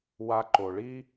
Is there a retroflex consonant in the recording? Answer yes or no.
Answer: yes